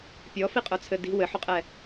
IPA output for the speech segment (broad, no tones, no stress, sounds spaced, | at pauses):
pʲ ɔ f i qʼ œ t͡sʰ ɘ d i̤ w ɘ ħ u qʼ ɛ